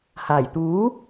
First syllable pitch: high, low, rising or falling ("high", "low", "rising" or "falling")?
low